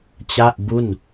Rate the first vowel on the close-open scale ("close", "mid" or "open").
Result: open